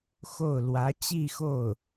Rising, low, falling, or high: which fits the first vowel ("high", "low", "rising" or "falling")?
falling